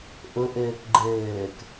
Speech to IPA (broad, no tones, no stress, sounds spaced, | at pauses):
ʔ ʊ ʔ ɘː k ɡ͡ǃ ɘː k